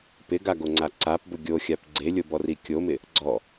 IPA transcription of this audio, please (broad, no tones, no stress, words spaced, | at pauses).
pɪɡaɡoŋ͡ǀa ǀapbʊ ɡʲoxʲap ɡ͡ǀelʲobɔri kʲomɪ | ɡ͡ǀɔ